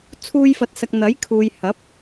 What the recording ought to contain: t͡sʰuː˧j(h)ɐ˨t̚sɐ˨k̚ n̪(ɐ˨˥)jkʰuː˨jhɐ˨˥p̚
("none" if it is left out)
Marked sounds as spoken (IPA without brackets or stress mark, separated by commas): f, ɐ˨˥